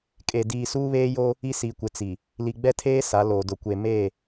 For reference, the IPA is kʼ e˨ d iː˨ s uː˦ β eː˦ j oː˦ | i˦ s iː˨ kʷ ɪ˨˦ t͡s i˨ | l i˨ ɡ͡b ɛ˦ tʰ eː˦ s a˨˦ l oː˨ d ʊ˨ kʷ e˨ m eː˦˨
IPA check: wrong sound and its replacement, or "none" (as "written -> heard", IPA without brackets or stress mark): none